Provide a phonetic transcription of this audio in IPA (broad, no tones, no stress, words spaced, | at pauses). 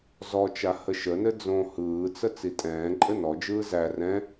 zɔt͡ʃa həʃənɘ d͡zõ hɯːt͡sə t͡sitʼɛ̃ːǃʼɘ nɔd͡ʒɯː zæ rɛ̃